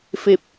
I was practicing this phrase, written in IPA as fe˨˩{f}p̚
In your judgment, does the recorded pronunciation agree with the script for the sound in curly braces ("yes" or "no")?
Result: no